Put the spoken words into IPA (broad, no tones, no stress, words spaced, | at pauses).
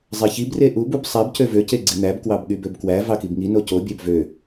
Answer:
zˤeçib reʔub ub sˤæb cøvø ceɡ͡ǀin̪æb kwɑbɠybøbkwæ vɑkibŋi noco bʲæbvø